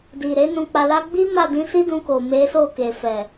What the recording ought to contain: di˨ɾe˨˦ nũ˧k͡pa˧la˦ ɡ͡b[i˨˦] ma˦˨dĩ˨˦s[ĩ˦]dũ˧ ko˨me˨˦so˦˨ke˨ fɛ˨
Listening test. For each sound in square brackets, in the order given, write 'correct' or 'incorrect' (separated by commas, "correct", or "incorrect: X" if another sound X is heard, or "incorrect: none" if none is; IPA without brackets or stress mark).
incorrect: i˦, incorrect: i˦